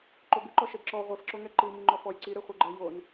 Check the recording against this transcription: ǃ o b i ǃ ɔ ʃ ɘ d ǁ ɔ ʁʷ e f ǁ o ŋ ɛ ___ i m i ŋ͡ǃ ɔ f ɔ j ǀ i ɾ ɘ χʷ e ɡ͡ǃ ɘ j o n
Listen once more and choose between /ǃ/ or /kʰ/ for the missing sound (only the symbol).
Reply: ǃ